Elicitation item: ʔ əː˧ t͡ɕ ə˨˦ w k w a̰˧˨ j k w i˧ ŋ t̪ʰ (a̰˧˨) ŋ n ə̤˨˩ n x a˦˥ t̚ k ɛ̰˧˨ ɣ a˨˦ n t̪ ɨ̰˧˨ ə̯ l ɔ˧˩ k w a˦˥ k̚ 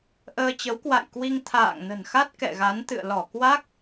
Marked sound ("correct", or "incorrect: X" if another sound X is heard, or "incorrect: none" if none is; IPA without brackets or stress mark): incorrect: a̰ː˧˨